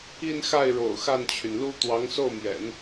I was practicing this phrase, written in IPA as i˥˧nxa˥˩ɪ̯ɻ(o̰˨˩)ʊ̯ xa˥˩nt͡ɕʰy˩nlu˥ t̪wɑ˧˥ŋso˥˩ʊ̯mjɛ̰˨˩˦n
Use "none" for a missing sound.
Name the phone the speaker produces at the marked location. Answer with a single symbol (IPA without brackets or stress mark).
o̰˨˩